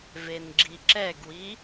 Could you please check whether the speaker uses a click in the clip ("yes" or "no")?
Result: yes